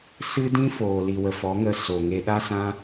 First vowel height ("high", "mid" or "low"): high